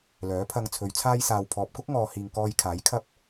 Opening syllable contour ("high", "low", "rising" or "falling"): rising